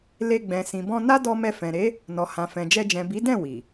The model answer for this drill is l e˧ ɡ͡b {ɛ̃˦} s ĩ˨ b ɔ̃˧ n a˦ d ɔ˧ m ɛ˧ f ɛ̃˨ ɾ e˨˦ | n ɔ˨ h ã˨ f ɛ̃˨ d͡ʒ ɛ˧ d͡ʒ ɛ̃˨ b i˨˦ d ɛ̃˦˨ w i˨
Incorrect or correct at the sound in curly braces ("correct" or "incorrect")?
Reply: incorrect